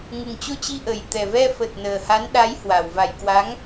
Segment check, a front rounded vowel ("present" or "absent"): absent